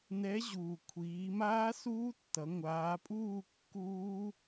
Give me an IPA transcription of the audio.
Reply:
nɛ˨˥ʑuː˩ kʷʰiː˩˧maː˦˥ suː˦˥tːʌ˩˧ ŋʷaː˩˧pʼuː˥˨kːuː˦˥

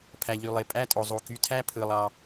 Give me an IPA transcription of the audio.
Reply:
pʰæ˩ʎy˩lˠe˩ pʼæ˧tʼo˩zˤu˩ ky˩˧tʰæ˧ pʰɯ˩lˠɑ˩

